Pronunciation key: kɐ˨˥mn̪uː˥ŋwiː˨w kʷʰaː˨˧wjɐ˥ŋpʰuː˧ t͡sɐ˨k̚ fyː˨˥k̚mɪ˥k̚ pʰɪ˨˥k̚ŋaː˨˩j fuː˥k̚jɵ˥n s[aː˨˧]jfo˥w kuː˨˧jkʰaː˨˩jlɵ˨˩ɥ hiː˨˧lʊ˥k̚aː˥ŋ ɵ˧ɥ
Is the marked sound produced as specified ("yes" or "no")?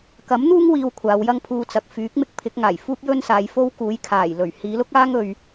yes